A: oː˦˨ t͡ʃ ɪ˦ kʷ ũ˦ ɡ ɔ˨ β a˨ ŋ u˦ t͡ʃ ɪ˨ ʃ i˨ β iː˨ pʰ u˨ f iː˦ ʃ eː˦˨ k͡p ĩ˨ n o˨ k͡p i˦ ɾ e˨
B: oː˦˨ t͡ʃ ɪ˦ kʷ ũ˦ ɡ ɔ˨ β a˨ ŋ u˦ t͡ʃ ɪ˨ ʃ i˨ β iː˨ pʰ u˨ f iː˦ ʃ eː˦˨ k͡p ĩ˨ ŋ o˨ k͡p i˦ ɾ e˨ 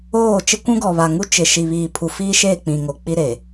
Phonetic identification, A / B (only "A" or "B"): B